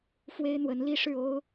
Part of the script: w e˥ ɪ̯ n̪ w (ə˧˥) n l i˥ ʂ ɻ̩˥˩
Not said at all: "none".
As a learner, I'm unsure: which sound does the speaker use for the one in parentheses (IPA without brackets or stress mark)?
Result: ə˧˥